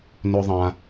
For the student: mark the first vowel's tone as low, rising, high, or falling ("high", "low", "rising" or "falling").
high